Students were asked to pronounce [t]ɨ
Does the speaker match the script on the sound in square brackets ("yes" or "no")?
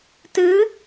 yes